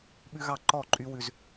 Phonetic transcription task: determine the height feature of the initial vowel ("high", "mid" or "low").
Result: high